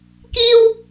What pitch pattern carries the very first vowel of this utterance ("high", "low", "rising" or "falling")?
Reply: high